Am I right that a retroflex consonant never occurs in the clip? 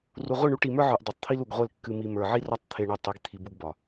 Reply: no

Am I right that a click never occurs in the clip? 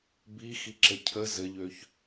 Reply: no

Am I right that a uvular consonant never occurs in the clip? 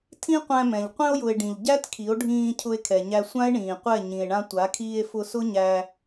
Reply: no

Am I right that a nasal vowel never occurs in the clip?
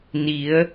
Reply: yes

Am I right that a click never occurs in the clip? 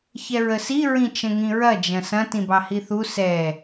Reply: yes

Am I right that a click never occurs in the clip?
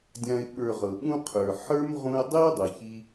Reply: yes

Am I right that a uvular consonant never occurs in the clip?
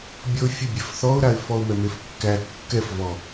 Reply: yes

